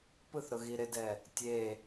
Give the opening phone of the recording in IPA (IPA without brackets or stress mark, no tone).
p